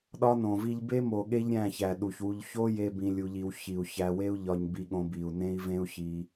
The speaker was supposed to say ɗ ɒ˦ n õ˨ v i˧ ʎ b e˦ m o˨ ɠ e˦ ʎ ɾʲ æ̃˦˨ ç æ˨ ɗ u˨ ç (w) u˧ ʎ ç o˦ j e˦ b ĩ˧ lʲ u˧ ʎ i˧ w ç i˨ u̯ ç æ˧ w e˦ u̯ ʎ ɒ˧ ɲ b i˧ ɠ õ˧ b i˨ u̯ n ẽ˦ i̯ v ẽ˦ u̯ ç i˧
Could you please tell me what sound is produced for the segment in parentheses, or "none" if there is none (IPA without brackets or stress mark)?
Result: w